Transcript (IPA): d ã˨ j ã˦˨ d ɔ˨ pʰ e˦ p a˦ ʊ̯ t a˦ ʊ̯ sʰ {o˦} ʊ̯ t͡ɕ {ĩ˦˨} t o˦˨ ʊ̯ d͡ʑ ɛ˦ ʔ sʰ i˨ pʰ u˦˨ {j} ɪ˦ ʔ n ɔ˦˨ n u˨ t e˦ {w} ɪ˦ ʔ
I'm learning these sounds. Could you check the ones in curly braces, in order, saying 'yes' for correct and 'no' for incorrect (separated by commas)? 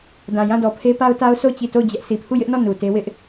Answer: no, no, yes, yes